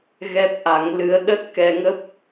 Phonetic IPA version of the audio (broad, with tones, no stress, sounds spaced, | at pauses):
ɣ ɛ˦˥ p̚ ʔ a˨˦ ŋ l ɨ˧ ə̯ ɗ ə˦˥ t̚ k ɛ˧ ŋ ə˦˥ p̚